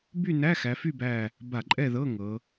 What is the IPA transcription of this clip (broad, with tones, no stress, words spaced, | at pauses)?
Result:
by˥˨ næ˧˥˧xæ˩˧fy˥˨bæ˧˩ | ba˧˩˧ǃʼɛ˥˨ðɤ˧˥˧ ŋɤ˩˧